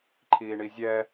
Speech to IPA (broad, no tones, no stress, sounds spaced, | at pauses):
ǃʰ iː ɳ i zʲ ɛ